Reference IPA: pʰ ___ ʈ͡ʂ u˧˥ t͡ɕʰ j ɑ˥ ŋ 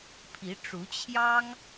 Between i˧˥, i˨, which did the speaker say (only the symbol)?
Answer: i˧˥